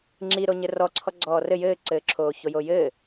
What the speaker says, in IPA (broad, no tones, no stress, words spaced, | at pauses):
ŋ͡ǁiɾo ɲɘrɔ ǀʰɔɡ͡ǀɔːrɘ jɘːǀɘːǁʰoː çojojɘː